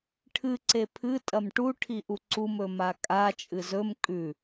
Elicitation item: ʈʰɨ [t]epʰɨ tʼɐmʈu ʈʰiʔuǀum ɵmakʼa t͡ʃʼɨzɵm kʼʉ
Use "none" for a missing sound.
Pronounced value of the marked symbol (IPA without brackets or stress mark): ǀ